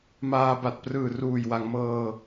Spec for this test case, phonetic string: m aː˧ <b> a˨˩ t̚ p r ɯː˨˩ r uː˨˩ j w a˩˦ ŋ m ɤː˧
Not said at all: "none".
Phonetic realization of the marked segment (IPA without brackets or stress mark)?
b